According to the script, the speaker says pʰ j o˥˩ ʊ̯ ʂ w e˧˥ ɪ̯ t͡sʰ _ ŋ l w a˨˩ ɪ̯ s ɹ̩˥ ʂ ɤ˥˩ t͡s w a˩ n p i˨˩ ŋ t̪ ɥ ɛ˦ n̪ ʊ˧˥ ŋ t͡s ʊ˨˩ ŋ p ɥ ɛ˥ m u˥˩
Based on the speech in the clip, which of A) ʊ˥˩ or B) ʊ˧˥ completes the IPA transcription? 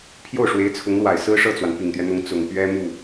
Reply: B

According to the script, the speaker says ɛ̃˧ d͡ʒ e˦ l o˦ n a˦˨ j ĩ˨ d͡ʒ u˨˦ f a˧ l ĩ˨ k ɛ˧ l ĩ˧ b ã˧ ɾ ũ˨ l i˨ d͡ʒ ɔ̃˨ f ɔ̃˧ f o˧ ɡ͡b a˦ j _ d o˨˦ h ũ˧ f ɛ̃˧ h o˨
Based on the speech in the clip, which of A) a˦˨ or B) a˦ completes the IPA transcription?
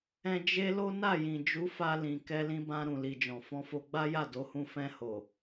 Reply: A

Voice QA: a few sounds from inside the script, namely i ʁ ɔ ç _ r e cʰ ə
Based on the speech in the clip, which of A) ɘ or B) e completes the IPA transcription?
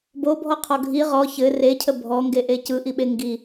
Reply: A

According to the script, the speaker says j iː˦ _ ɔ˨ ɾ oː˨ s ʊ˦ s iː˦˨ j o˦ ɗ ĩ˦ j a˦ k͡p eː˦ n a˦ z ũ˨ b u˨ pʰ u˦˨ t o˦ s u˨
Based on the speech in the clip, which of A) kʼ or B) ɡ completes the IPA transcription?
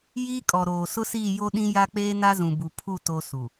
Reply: A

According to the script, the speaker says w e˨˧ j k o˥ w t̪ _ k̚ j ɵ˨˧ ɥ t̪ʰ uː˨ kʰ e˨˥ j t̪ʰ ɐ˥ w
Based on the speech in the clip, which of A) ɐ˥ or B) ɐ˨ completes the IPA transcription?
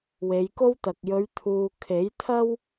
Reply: B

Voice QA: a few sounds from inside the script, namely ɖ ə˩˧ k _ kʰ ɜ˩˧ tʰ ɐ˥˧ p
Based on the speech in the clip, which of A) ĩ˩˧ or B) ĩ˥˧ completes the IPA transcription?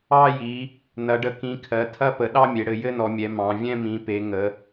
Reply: A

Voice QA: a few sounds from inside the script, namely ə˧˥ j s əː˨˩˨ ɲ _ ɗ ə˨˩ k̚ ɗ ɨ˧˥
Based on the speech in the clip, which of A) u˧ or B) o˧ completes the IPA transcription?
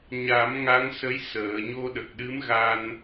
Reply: B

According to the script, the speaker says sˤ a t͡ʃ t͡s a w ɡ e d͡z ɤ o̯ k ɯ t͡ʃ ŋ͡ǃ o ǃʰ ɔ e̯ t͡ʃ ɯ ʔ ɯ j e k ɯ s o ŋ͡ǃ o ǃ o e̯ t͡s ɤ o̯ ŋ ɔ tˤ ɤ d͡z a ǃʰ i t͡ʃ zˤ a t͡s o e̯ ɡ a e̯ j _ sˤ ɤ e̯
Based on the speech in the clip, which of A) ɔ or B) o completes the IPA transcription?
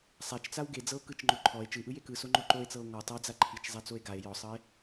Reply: A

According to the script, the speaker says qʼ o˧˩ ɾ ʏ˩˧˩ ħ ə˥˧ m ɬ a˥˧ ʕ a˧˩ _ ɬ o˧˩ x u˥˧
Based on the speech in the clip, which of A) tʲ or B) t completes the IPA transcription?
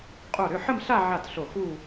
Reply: B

